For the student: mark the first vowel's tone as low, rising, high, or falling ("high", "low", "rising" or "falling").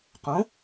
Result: rising